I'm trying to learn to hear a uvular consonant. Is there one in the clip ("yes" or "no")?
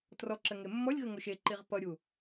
yes